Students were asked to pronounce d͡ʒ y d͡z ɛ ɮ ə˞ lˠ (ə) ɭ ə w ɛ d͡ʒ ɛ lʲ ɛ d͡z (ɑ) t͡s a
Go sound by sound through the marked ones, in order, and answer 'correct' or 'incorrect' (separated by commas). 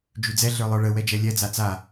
incorrect, incorrect